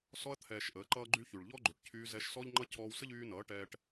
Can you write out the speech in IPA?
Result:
s ɔ˧ ɐ̯ t̪ʰ ɛː˨ ʃ ʔ əː˨˦ ǃ ʌː˦ ɡ͡ǃ y˦ ç y˨ ɭ ʎ ɔ˦ ɡ͡ǃ ʏ˨ ʈ cʰ yː˧ z ɛ˧ ʃ s ɔ˦ ʎ ŋ͡ǃ ʌ˦ cʰ ɔː˧ w s ə˦ ʎ yː˧ n ʌː˨˦ ʈ ɛː˧ ʈ

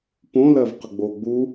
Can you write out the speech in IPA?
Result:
p õ l ɜ v q ə ɡ͡b o ɡ͡b u

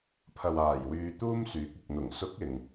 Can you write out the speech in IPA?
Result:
pʰ ɐ˨ w aː˨˩ j w yː˧ t̪ uː˥ m s yː˨˥ k̚ ɪ˨ k̚ n̪ ʊ˨˩ ŋ s ʊ˨˥ k̚ ɪ˨ ŋ

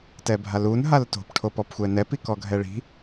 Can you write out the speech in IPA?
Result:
t ɛ bʱ a l u n ɦ a l t o̤ p ʈʰ o p ɔ p xʷ ɛ n ɛ p i k ɔ ɡʱ ɛ ɭ i̤

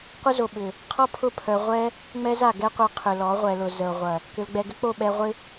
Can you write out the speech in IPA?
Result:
qʷ ə˦ z o˨ ɓ ʏ˨ | qʰ ɔ˦ pʰ ʊ˦˨ pʰ œ˧ ʁʷ ɛ˦ | ŋ͡m ɛ˦ z a˨ ɡ ɛ˦ qʷ œ˧ qʰ ʏ˨ l ɔ˨˦ ʁʷ ɛ˨ l ʊ˨ z ə˨ o̯ ʁʷ ɐ˨ | k ʏ˧ l ɡ͡b ɛ˧ ɡ ʏ˦ k͡p o˦˨ ɓ ɛ˧ ʁʷ ɪ˦

